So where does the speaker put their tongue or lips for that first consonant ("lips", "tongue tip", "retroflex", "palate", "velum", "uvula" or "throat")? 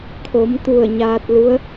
velum